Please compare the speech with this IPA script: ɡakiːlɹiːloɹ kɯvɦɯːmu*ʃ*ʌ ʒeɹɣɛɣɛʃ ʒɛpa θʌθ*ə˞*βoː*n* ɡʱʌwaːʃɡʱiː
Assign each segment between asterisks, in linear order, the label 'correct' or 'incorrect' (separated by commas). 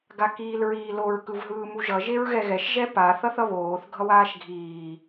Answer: incorrect, incorrect, incorrect